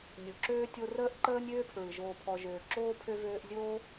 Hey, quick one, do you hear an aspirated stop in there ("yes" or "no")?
yes